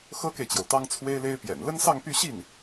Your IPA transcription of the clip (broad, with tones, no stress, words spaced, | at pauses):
xɤ˥ke˨ɪ̯t͡ɕjo˩ʊ̯ t̪ɑ˥ŋt͡sʰwe˥ɪ̯le˥ɪ̯pjɛ̰˨˩n lə˥nsɑ˥˧ŋpy˥˧ ɕi˥˩n